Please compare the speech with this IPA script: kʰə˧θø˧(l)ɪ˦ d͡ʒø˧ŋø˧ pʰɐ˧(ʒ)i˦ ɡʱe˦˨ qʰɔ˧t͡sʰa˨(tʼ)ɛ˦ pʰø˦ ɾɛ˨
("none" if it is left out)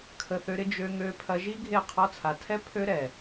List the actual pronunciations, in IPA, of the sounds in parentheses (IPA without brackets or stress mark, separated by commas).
ɾ, ʒ, tʰ